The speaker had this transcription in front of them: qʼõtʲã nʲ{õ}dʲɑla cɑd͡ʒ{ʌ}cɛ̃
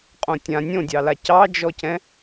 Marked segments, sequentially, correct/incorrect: correct, incorrect: ɔ

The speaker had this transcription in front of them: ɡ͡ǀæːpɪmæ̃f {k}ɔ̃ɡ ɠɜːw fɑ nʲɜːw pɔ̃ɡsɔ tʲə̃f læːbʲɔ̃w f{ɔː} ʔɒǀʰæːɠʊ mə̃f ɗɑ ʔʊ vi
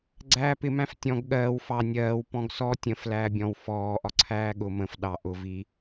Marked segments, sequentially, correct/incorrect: incorrect: tʲ, correct

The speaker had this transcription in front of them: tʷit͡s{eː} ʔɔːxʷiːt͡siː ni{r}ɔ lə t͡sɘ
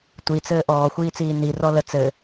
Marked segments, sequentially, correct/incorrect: incorrect: ɘː, correct

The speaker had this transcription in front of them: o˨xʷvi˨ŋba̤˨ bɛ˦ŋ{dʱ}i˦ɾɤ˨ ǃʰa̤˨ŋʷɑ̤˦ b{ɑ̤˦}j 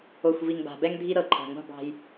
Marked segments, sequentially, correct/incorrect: correct, correct

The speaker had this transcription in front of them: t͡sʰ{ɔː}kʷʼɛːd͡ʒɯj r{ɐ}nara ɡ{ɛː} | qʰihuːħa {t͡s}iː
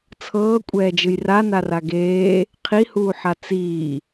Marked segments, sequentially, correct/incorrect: incorrect: ɤː, incorrect: a, incorrect: eː, correct

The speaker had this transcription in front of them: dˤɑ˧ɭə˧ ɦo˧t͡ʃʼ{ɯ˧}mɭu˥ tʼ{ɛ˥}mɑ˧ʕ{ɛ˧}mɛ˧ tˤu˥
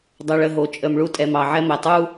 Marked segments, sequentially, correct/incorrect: incorrect: ə˧, incorrect: ɛ˧, incorrect: ɛ˥

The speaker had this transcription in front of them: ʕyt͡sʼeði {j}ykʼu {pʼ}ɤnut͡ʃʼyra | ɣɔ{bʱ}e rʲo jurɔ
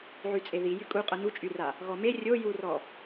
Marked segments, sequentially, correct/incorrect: correct, incorrect: qʼ, incorrect: m

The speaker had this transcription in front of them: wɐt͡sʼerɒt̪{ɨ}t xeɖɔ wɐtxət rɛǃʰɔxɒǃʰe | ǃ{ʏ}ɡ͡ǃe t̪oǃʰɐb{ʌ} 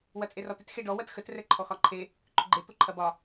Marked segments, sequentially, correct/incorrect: incorrect: ʏ, correct, incorrect: ɒ

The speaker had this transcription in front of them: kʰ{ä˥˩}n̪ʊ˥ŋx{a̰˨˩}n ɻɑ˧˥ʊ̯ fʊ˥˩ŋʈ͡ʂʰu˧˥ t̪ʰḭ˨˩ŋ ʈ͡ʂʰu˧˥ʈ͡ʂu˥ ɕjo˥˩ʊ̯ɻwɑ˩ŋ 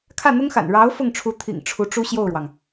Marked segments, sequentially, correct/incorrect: correct, correct

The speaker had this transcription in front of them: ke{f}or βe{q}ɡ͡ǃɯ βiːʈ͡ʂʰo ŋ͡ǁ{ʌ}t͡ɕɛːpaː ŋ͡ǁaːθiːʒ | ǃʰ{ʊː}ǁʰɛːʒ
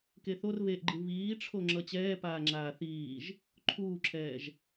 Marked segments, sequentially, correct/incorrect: incorrect: θ, incorrect: ʔ, correct, incorrect: uː

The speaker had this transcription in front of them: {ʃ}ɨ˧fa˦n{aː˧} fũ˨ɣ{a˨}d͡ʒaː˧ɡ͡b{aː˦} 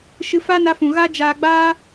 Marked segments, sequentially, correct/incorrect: correct, incorrect: a˧, incorrect: a˦, correct

